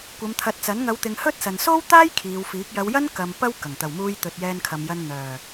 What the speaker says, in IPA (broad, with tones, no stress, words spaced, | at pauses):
kʷɐ˨˧mt̪ʰɐ˨˥t̚t͡sɐ˨˥n ŋɐ˨˧wt̪ɪ˨ŋ hɵ˥t̚sɐ˨n so˥wt̪aː˥j kʰiː˨˧wfiː˨˥k̚ jɐ˨˧wjɐ˥n kɐ˧m pɐ˥w kɐ˨˩ŋ t̪ɐ˨˩wmuː˧j t̪ɵ˨t̚jɛː˧nkʰɐ˨mjɐ˧n n̪œː˨˩